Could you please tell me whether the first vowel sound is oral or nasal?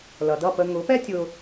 oral